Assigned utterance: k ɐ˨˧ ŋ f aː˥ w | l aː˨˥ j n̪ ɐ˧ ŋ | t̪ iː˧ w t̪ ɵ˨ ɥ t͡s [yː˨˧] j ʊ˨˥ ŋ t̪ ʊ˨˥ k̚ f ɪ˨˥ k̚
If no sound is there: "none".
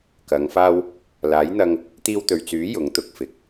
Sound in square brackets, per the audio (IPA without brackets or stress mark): yː˨˥